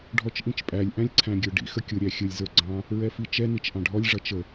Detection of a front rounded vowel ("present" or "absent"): absent